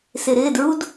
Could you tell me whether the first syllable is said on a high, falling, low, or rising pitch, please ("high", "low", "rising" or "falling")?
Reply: low